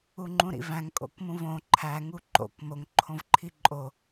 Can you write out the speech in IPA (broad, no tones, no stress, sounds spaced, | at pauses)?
u ŋ͡ǃ ũ ɾ ḭ v æ̃ ŋ kʼ o̰ k m ũ v õ ǃʰ æ ŋ u ǃ o̰ k m o ŋ ǃʰ õ v ǃʰ i ǃʼ o